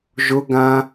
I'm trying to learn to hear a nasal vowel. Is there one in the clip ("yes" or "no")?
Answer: yes